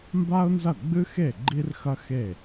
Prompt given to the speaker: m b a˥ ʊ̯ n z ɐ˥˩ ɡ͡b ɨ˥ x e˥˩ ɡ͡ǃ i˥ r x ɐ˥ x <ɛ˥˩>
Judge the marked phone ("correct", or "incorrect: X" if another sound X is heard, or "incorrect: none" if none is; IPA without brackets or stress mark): incorrect: e˥˩